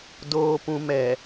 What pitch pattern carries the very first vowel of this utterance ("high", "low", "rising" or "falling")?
low